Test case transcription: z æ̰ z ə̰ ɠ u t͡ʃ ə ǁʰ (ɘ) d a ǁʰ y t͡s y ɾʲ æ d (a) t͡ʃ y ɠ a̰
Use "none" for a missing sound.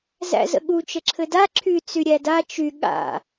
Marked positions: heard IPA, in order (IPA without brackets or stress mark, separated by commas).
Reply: ɘ, a